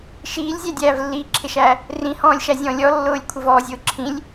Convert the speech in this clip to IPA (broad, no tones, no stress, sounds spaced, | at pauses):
ʃ iː lʲ zʲ æ dʲ æː v lː i ǁʰ ɪ ʃ æː | r ĩ h ɔ̃ː lʲ ʃ æ zʲ ɔ̃ lʲ ɔ lː ʊː lʲ kʷʰ ɪ v ɔː zʲ ʊː ǁʰ ĩ lʲ